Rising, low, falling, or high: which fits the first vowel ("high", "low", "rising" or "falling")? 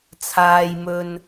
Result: low